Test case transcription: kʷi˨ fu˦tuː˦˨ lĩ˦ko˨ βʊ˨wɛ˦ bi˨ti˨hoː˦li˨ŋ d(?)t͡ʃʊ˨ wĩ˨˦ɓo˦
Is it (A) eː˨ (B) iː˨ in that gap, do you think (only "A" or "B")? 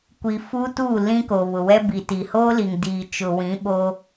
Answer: B